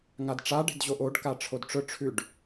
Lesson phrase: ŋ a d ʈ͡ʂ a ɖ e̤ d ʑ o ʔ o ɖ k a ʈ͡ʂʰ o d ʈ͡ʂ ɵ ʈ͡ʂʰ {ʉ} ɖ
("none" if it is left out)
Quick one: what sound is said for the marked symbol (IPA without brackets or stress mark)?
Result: ʉ